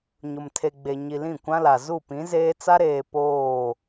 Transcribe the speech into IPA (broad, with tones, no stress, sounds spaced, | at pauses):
ɲ ʊ˨ m tʰ e˨ ɡ͡b e˨ ɲ i˨ l ĩ˦˨ kʷ ã˦ l a˨ z u˦˨ p ĩ˨˦ z eː˦ t͡s a˦ ɾ eː˨ p oː˦˨